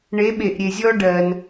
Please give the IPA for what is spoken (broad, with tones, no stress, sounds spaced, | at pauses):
ɳ e˨˦ ɓ e˨ ʔ ɾʲ e˨ zʲ ɔ˦ ɖ ɜ˧ n